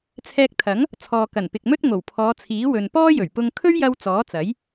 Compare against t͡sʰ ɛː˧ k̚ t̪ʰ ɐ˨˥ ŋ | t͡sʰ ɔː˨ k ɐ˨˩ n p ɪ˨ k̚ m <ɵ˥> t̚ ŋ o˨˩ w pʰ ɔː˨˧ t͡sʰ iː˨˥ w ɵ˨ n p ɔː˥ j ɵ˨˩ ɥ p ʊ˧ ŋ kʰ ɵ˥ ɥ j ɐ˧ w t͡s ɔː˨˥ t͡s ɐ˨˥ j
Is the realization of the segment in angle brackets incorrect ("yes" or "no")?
no